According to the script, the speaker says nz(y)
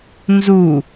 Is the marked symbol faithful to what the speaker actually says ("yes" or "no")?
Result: no